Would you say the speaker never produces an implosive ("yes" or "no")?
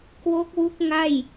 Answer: yes